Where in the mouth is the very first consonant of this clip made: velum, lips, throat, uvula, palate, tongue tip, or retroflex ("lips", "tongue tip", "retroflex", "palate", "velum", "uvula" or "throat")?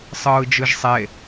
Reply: tongue tip